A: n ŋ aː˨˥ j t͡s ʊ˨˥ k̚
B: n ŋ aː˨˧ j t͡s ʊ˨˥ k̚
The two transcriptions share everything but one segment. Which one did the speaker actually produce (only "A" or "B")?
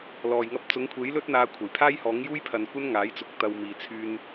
A